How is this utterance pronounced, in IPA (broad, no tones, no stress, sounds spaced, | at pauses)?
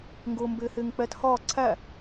ŋ ɡ ʊː m b ɪː h ɪː ŋ k͡p ɛ t h ɒː ǀʰ æ